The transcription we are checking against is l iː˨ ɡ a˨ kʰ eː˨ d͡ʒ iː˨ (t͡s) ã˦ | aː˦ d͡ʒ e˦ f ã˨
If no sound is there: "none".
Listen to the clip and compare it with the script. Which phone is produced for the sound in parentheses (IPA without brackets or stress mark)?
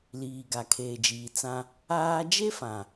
t͡s